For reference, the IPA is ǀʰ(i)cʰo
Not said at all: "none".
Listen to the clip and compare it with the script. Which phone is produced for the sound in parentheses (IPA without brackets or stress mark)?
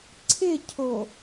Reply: ɪ